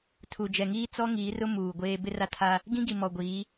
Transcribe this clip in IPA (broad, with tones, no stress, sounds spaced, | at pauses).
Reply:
tʰ u˨ d͡ʒ ɛ˨ ŋ iː˦ t͡s ɔ˦ ŋ iː˨˦ r ʊ˦ m uː˨ ɡʷ eː˦ b ɪ˦ r a˦ tʰ a˦ | ɡ ĩ˦ ɡ i˨ m ɔ˨ ɡʷ iː˨˦